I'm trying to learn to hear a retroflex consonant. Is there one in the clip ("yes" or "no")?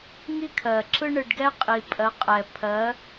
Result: yes